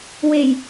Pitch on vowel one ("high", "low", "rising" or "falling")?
low